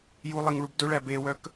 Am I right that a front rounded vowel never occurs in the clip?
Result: no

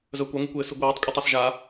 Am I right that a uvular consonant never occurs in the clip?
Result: yes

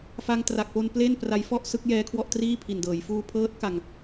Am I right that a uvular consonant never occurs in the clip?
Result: yes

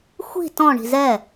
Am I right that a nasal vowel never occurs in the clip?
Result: no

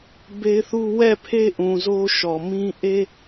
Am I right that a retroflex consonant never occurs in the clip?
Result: yes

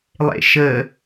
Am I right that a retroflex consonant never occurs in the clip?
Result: yes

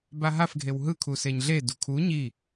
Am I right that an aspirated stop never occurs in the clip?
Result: no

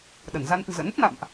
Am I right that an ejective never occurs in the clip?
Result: yes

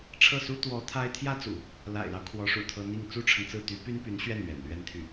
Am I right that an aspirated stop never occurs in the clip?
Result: no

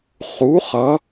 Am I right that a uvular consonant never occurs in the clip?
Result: no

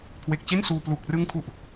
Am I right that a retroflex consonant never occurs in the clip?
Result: yes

